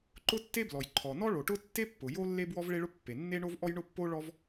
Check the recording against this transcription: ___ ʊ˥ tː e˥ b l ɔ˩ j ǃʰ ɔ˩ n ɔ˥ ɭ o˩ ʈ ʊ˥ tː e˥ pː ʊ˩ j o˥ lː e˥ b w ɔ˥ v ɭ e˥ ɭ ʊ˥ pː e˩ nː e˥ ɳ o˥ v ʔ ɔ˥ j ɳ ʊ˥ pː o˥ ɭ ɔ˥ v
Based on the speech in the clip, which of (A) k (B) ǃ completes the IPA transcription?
B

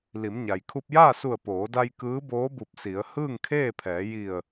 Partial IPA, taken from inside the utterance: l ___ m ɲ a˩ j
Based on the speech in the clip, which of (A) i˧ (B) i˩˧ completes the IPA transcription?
B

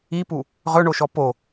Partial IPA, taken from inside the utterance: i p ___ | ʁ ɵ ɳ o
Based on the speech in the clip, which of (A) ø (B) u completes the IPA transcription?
B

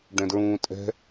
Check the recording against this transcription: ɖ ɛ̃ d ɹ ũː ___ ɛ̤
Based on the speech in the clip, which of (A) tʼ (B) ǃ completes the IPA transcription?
A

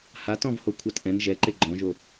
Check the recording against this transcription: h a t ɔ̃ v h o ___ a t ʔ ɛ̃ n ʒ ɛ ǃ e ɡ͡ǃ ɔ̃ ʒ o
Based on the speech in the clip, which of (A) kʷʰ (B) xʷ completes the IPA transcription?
A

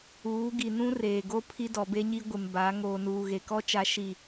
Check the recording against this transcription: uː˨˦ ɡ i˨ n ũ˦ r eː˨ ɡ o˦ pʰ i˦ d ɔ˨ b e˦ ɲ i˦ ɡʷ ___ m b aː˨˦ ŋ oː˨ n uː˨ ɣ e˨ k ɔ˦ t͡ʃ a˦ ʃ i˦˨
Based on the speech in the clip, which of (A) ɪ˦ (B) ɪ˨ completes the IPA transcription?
B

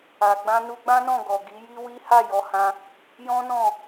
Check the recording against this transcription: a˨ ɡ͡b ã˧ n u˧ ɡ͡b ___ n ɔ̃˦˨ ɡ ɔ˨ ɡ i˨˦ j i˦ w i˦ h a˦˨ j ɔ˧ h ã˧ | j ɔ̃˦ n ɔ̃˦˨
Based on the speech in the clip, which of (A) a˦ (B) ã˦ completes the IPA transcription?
B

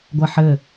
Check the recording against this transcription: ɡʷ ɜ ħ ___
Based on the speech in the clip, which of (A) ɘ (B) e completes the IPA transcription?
A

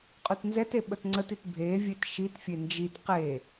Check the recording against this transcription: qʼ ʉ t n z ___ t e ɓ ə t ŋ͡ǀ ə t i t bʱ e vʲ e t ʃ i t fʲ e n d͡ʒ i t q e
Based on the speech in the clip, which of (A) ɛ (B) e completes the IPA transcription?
A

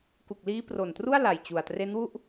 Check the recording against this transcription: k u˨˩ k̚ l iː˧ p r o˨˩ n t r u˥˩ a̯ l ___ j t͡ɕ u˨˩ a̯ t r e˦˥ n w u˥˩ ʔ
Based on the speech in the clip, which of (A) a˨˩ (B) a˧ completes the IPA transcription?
A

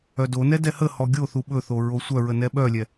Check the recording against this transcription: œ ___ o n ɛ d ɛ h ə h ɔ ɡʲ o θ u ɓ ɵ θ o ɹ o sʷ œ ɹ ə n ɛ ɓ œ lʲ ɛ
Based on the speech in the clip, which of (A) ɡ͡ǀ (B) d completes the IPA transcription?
B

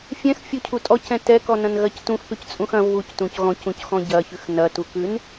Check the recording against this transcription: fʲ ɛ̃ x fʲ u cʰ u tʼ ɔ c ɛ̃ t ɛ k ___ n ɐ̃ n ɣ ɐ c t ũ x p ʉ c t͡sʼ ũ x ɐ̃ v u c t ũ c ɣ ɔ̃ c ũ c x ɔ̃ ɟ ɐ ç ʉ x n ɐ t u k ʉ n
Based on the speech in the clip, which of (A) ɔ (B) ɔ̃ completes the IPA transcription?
A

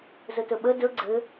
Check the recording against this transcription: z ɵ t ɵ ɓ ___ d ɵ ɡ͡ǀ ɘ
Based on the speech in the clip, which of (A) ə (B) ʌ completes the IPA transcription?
A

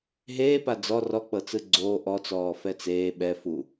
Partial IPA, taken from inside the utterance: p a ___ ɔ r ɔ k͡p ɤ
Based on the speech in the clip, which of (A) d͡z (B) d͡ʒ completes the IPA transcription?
A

